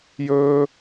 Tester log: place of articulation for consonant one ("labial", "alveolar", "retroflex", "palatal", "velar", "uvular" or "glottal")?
palatal